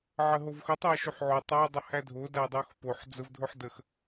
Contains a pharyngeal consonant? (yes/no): yes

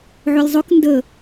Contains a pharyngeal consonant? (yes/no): yes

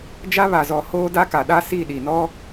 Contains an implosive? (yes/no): yes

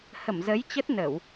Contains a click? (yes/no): no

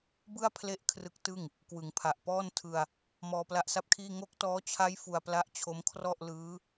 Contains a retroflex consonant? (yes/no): no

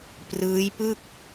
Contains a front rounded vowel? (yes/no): no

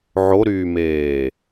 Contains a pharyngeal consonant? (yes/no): yes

